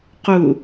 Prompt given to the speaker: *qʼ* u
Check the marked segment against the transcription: incorrect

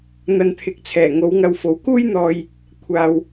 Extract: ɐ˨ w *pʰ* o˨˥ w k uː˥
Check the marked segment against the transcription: incorrect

